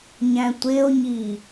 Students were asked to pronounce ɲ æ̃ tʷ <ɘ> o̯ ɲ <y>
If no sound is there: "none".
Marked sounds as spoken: e, i

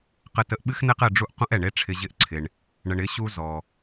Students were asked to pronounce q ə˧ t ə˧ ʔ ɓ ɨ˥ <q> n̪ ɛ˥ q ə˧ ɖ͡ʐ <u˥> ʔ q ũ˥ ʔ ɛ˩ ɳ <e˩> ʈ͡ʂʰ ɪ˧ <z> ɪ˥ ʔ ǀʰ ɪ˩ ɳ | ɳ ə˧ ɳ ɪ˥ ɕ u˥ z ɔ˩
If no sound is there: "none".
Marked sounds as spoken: x, u˥, e˥, ʑ

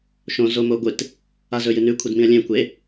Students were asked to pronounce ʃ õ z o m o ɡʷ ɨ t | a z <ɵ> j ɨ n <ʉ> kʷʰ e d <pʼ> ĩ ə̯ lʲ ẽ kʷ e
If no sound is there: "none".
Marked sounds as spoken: ɵ, ʉ, m

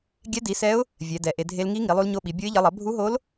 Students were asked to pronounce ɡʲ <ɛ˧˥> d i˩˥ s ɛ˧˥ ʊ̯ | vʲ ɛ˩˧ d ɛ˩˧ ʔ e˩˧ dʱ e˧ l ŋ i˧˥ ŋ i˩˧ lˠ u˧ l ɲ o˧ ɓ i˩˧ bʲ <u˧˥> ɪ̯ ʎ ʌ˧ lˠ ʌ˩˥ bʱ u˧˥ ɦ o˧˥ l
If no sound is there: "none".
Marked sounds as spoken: ɛ˧˥, o˧˥

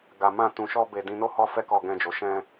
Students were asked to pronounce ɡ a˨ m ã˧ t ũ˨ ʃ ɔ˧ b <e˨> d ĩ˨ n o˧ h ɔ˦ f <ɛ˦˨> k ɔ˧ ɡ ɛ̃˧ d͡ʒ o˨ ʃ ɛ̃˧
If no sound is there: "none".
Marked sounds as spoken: e˨, ɛ˦

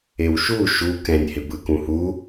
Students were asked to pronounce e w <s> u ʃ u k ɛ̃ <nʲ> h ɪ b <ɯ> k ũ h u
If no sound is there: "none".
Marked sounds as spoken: ʃ, nʲ, ɯ

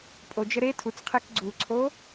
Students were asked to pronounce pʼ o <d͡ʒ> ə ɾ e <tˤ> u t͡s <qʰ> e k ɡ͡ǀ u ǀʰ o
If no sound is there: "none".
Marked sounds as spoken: d͡ʒ, tʰ, qʰ

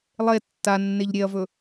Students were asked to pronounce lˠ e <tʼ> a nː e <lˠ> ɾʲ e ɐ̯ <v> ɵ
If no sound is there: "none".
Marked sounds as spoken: tː, ʎ, v

